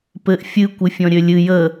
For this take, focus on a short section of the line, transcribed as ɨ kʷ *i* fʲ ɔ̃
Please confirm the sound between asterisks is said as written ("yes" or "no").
no